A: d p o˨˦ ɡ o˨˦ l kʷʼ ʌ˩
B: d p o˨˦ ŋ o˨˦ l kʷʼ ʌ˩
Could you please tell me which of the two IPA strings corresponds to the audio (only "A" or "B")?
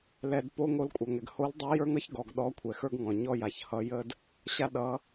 B